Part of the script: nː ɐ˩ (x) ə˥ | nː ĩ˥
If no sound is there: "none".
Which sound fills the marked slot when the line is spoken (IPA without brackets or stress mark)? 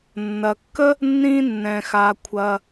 kː